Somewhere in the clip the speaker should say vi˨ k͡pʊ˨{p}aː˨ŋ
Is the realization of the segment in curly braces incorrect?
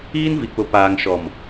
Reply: no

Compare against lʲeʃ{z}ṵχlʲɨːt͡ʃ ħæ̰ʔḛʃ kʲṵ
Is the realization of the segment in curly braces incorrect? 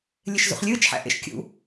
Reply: no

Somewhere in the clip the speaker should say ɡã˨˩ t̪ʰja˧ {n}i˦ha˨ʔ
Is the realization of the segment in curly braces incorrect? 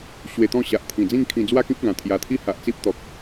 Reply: yes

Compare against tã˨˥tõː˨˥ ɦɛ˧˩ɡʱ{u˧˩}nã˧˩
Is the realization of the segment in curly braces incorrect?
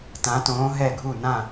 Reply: no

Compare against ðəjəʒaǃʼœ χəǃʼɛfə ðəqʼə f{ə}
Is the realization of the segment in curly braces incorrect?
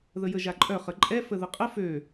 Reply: yes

